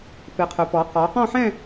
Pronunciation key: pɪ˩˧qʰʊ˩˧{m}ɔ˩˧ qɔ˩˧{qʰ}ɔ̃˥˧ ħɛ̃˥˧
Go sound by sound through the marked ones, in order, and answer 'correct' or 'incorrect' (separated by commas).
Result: incorrect, incorrect